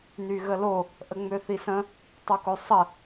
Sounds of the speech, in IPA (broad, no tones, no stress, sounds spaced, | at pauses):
n y ɣ ə l o | ʔ ə ŋ͡m ø θ i s ə̃ | tˤ o k o sˤ ə